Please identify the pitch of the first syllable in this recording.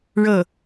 falling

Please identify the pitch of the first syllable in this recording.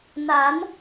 rising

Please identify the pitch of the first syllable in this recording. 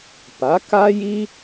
rising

